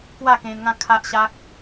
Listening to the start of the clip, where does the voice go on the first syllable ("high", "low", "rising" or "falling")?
falling